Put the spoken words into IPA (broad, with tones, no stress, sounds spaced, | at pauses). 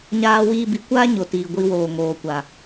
ɲ aː˧ w iː˧ b i˨˦ kʷ aː˦ ɲ o˨ t iː˨ ɡʷ i˧ w oː˨ ŋ oː˨ kʷ a˨